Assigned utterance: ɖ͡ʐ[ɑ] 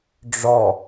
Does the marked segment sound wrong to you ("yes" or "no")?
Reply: yes